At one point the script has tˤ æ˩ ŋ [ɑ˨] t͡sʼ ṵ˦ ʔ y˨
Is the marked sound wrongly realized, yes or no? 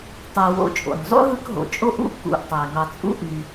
no